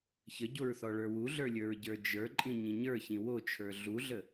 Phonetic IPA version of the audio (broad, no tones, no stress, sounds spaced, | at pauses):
ç ə ɟ o ɹ θ ɔ ɭ ə˞ w u ɮ ə˞ lʲ ə˞ ɹ ɟ ə˞ d͡ʒ ə˞ ǃʼ ĩ ɲ ĩ ɲ ə˞ ç ĩ w o t͡ʃʰ ə˞ ɮ u ɮ ə